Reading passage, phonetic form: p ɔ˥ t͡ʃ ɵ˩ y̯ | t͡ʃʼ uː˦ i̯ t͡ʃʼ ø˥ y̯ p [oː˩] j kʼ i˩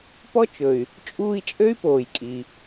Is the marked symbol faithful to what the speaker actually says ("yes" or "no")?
yes